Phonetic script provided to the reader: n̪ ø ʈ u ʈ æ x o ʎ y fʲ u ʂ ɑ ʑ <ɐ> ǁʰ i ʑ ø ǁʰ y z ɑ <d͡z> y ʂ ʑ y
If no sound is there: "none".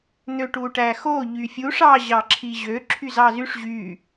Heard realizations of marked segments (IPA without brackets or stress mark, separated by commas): ɑ, z